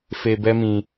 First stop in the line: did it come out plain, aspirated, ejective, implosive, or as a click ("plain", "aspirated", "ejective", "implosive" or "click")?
plain